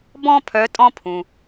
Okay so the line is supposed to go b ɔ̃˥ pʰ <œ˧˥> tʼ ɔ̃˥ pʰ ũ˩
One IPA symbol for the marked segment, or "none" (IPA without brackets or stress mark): œ˧˥